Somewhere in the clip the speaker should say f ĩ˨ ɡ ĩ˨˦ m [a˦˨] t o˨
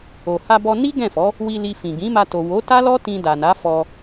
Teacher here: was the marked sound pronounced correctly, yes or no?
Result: no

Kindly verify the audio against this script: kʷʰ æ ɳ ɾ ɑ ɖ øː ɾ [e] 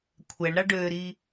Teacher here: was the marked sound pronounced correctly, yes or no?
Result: no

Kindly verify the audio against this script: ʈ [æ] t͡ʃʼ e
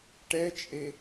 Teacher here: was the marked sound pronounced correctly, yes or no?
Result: no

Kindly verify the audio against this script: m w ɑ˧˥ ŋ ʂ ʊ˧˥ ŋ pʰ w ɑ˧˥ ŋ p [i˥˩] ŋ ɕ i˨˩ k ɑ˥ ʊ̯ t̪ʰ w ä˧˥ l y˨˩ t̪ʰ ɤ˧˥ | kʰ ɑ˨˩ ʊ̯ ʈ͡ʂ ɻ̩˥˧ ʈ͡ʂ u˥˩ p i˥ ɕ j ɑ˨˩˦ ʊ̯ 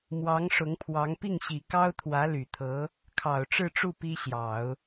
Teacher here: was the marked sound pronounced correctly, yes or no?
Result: yes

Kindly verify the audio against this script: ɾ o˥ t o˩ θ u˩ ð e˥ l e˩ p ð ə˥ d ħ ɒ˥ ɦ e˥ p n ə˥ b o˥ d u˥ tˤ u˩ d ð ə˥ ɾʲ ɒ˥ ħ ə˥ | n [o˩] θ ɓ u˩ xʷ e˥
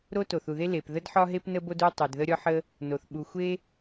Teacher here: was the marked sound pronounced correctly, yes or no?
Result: yes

